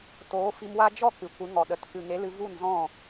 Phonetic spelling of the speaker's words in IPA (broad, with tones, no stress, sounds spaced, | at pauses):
t oː˨˦ f i˧ m w a˦ d͡ʒ ɔ˦˨ k ɨ˨ kʷ ɨ˨˦ ŋ ɔ˨ ɗ ə˨ t k ɨ˨ ŋ e˨˦ l ɨ˧ v u˦˨ n z ɔ̃˦˨